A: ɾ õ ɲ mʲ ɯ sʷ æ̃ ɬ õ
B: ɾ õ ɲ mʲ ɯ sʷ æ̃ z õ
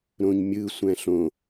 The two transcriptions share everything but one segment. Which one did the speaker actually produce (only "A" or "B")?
A